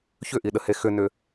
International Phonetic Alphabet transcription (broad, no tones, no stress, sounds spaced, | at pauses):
ç ʏ ʔ i ɗ ə h e x ʏ n ʏ